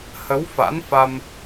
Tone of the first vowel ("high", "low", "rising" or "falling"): rising